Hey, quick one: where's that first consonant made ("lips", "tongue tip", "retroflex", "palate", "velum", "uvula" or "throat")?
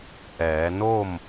throat